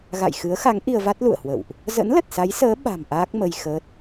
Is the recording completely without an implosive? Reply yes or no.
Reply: no